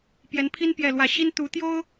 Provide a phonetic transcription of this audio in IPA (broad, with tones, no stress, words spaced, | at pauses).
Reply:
pjɛ˧˥npʰi˥n pjɛ˥˧lwä˥˩ ɕi˥nt̪u˧˥t̪jo˥ʊ̯